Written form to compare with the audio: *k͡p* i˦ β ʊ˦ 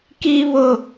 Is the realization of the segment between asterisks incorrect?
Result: yes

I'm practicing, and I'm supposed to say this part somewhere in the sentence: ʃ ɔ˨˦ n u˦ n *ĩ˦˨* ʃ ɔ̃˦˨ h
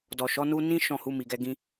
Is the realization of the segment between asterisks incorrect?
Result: yes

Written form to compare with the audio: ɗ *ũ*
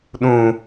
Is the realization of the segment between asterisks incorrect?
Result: no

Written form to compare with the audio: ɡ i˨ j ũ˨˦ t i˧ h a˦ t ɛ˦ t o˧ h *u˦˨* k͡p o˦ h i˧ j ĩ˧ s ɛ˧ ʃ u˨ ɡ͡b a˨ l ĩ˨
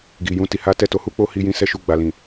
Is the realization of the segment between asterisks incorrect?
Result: yes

